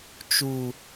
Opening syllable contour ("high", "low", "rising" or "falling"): low